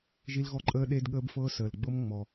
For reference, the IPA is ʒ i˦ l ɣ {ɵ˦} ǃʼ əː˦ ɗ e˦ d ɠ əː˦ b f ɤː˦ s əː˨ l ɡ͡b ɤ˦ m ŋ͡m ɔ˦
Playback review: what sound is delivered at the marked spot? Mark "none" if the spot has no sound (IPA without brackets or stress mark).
ɔ˦